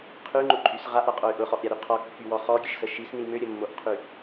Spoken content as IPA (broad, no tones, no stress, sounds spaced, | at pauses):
qʰ y ŋ͡ǃ ʊ ǃʼ y s ʁ a ʔ ɾ a qʼ o y̯ ʔ ʊ χ ɔ ʔ ɾʲ a ɾ y qʰ ɔ kː y w ɔ χ ɔ ɡʲ ə ʃ s ə ʃ i s n i m ø ɾʲ ə mː o ʔ qʰ y